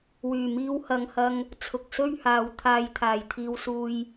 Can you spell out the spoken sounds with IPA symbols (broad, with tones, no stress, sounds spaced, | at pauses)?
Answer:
w yː˨˩ m iː˧ w h ɐ˨ ŋ h ɐ˧ ŋ | t͡sʰ ʊ˨ k̚ s ɵ˥ ɥ h aː˨˧ w t̪ʰ aː˧ j t̪ʰ aː˨ j t̪ʰ iː˧ w s uː˧ j